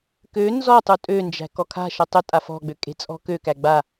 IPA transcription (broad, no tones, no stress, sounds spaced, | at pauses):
k ø n z ɔ tˤ u tʼ ø n d͡ʒ æ̤ k ɔ kʰ a̤ ʃ ɤ tˤ ø tʼ a f ɔ̤ ɡ͡b ø kʼ e̤ t͡sʼ ɔ̤ k ø k æ ɡ͡b a